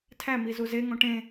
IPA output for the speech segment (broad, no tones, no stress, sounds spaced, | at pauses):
tʰ æ m i z u z e ŋ õ ʈ ẽ